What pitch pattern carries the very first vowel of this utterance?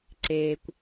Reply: low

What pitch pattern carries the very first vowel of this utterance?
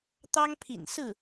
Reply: high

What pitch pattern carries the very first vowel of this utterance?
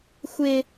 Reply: high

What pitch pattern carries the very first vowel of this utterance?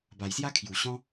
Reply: low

